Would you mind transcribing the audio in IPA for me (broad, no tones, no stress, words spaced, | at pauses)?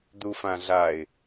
d̪ufãɮaɪ̯